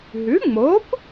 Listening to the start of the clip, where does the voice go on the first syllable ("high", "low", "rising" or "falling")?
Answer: rising